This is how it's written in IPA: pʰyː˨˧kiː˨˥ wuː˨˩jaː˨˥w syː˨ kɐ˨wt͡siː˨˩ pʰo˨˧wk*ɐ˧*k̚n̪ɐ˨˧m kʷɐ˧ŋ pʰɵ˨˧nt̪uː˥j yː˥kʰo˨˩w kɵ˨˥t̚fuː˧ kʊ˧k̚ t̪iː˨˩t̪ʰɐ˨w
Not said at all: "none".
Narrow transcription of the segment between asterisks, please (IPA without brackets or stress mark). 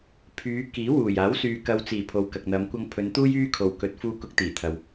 ɐ˨